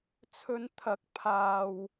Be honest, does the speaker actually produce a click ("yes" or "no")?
no